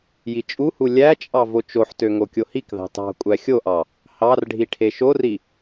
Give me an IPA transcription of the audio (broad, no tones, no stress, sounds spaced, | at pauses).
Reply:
j i t͡ʃʼ u h u lʲ æ t͡ʃʼ ɑ v o t͡ʃ o ħ t ø ŋ o kʲ o h i k ð ɑ̤ t ɑ̤ kʷʼ æ xʲ o ʔ ɑ | h ɑ r ɖʱ i ʈʰ e ʃ o r i